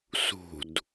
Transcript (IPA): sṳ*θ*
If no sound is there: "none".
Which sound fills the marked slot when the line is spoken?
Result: d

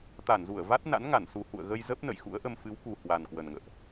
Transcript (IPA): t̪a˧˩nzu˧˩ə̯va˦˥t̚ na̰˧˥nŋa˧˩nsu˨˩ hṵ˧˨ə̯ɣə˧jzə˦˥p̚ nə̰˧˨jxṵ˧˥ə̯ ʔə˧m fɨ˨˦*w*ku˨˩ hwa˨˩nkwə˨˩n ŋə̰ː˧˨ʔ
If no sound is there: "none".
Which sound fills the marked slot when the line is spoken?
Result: w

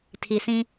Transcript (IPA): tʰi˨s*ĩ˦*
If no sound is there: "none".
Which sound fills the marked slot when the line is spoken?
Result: ĩ˦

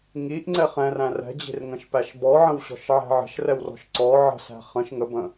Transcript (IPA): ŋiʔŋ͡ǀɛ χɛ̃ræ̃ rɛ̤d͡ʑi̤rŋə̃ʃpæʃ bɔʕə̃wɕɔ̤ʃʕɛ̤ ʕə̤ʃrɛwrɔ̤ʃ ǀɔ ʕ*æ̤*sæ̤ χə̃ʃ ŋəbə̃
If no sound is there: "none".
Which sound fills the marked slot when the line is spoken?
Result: ə̤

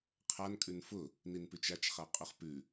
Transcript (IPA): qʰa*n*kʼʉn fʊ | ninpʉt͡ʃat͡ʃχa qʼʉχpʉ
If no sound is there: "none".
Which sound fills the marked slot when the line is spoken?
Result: n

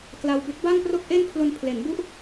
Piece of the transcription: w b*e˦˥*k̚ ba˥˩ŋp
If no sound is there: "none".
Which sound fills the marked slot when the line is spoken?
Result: e˦˥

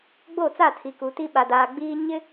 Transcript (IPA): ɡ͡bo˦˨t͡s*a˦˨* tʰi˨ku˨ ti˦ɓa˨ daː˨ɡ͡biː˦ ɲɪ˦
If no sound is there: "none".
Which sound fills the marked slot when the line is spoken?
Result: a˦˨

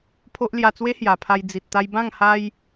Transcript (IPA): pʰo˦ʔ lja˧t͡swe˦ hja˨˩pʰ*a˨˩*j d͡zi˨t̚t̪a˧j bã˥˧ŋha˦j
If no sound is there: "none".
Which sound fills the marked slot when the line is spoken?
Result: a˧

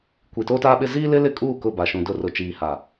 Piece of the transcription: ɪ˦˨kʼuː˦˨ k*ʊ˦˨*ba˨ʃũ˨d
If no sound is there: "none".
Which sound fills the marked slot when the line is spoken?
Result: ʊ˦˨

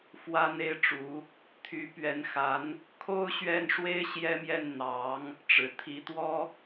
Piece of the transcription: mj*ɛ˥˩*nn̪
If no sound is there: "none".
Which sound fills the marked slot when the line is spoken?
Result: ɛ˥˩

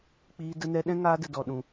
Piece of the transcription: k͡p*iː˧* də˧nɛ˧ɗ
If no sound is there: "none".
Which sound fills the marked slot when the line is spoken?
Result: iː˧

